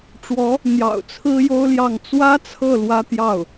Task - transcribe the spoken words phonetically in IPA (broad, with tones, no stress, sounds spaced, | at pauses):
ʈ͡ʂ w ɔ˧˥ | n̪ j ɑ̰˨˩ ʊ̯ t͡sʰ ɹ̩˥ j o˥ ʊ̯ l j ɑ˥˩ ŋ t͡s w ä˥ t͡sʰ ɤ˥˩ l w ä˥ t̪ j ɑ˥˩ ʊ̯